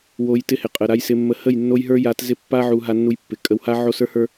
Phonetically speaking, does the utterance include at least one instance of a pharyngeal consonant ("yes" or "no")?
yes